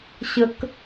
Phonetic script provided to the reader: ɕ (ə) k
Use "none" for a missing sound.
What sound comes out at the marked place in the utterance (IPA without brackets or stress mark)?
ə